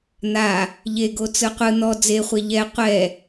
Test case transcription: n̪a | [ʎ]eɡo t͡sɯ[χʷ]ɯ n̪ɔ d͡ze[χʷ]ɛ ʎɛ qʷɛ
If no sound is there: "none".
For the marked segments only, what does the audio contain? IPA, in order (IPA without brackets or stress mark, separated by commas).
ʎ, qʷ, χʷ